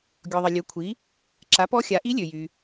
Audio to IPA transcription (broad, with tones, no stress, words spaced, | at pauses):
ɡʲɔ˩ðˤə˩ lʲø˩˥kʷʰi˩˥ | ǁa˩˥pɔ˧˥xʲa˩˥ ʔi˧˥lʲø˩jy˩